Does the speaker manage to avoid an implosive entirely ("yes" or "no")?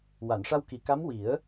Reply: yes